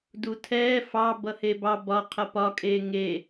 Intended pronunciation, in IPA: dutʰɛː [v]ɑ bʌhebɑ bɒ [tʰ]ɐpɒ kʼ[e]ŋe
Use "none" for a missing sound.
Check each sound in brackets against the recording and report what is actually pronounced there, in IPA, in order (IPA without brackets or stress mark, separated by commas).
f, qʰ, eː